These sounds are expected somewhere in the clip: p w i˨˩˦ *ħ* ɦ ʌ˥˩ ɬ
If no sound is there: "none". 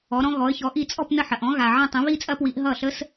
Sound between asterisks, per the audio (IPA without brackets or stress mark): ʔ